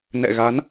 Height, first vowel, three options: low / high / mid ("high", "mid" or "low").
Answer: mid